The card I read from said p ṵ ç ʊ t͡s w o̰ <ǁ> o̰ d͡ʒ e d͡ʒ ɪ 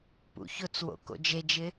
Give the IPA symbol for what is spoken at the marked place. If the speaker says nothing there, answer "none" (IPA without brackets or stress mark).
k